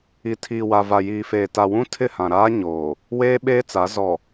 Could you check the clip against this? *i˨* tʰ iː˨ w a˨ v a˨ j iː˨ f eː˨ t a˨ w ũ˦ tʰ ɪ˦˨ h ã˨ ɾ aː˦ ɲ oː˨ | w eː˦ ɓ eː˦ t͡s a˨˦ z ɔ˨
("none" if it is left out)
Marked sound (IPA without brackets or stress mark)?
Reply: i˨